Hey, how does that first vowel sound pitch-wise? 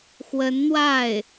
rising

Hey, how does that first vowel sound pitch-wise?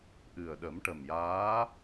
low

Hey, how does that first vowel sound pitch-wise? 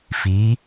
rising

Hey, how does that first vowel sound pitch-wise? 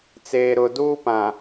low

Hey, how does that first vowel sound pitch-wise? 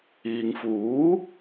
low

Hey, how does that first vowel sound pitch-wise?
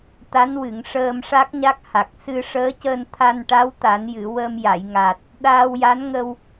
rising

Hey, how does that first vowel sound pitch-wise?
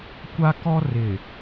high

